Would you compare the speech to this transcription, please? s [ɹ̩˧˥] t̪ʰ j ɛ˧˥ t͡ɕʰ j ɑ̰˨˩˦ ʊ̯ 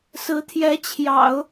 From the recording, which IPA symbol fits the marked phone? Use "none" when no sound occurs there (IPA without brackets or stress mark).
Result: ɹ̩˧˥